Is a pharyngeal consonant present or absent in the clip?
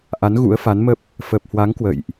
absent